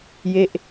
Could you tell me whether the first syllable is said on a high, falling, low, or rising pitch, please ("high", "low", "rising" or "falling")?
falling